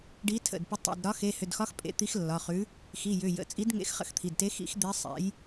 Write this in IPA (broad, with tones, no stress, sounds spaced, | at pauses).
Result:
ɖ i˨˥ tʰ ə̰˩˧˩ d p ʏ˨˥ tˤ ḭ˩˧˩ d ɾ ɒ˨˥ x e˩˧˩ h ʏ˩˧˩ d x ɒ˨˥ x pʼ ḛ˨˥ t̪ i˨˥ x lː ɒ˩˧˩ χ ʉ˨˥ | x i˩˧˩ j ʏ˩˧˩ j ə̰˩˧˩ t͡sʼ i˨˥ d ŋ ḛ˨˥ x χ ə̰˨˥ x t̪ʰ i˩˧˩ d t e˨˥ x ḭ˨˥ x d̪ e˨˥ sˤ ḛ˨˥ j